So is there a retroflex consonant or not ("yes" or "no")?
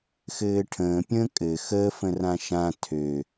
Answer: yes